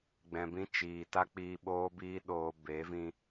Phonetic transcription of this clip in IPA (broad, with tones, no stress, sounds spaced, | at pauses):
ɡ͡b ɛ̃˨ b ĩ˧ t͡ʃ iː˨ t a˦ k͡p iː˧ ɓ oː˦ b iː˦ ɗ oː˧ b e˨˦ v ĩ˧